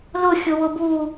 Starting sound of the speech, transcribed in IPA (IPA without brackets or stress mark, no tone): l